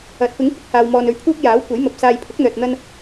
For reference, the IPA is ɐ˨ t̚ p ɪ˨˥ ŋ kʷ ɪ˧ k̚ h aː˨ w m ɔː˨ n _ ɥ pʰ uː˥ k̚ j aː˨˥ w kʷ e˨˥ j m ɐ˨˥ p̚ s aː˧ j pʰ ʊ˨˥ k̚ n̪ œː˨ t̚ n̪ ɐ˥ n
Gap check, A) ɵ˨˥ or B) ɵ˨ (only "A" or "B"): A